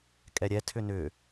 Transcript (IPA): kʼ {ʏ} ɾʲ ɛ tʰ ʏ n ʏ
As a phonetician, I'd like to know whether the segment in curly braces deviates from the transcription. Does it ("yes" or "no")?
yes